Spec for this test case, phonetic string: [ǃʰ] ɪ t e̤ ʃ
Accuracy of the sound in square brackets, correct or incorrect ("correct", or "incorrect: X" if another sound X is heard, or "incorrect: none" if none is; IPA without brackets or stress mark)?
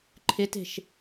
correct